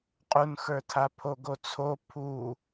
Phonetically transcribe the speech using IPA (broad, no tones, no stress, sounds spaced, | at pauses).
qʼ u n x ə˞ tʰ a pʰ o ɡ o t͡sʰ o pʰ u